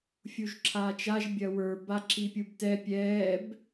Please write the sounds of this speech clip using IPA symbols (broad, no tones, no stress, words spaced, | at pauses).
fʲuʒǁʰaːt͡ʃaʒ bʲɐwə˞ baǁipʲubtɛ pʲɛːb